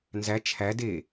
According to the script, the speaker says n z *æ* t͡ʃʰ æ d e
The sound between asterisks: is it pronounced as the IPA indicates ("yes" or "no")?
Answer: yes